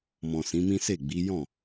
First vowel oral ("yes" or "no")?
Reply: no